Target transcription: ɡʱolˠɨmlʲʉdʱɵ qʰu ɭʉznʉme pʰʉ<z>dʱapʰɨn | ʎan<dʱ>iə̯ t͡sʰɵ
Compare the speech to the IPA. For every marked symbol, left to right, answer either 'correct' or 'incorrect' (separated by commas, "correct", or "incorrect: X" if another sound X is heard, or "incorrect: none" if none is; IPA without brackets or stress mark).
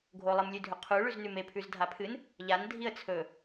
correct, correct